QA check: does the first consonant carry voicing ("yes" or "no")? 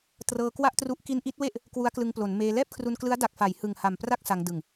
no